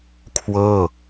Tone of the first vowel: falling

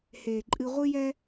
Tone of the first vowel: low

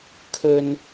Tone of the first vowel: low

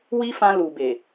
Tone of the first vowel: high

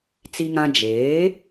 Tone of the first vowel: high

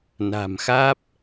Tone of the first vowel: low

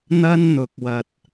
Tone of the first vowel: high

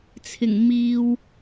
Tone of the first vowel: low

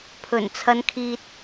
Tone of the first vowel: low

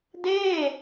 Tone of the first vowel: falling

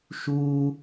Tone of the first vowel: high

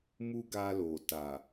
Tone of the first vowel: high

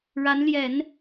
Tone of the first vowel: rising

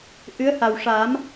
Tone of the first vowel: rising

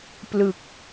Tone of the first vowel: low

